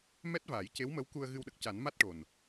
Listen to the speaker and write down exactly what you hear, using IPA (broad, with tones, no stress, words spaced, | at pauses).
mɛ˦˥t̚vaː˨˩˦jce˧˥wmə˧˥w ku˧ə̯ɣɨ˧wɗə˨˩k̚ ca˨˩˦nma˦˥t̚ʈo˨˩n